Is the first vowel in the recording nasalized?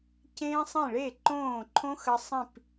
yes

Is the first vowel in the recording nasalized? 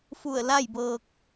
no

